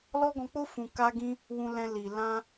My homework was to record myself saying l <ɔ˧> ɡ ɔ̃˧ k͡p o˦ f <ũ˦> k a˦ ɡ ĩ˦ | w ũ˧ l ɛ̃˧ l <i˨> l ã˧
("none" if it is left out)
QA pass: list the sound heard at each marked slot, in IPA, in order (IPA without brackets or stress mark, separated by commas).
ɔ˦, ũ˧, i˨